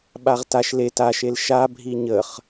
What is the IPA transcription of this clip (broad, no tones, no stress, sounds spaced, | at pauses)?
ɓ a ʁ t a ʃ l e t a ʃ e l ʃ a bʱ i ɲ ə χ